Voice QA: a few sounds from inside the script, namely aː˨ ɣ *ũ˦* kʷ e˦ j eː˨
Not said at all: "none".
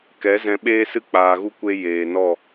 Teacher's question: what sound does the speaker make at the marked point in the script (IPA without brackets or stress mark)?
u˦